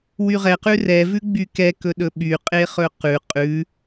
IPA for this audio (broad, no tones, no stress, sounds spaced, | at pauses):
w y ʁ ɛ q ʉ r ɛ v ʉ ɡ͡b y k ɛ k ɵ ɗ ɵ ɓ y qʼ e χ ɵ q ʉ qʼ ʉ